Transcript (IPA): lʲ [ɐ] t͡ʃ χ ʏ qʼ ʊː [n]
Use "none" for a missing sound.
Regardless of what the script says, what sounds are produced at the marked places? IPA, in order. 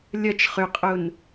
ɐ, n

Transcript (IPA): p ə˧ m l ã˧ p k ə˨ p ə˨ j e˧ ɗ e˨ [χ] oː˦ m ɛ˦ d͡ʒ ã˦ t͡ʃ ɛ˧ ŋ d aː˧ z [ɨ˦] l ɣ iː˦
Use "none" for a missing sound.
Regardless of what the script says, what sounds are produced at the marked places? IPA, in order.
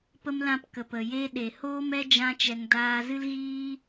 h, ɨ˦

